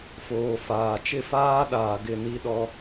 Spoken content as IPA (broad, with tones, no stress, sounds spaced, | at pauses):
f oː˨ f aː˨ t͡ʃ ɪ˦˨ f aː˦ ɗ aː˨ ɡ ɪ˦˨ n i˦ ɗ ɔ˦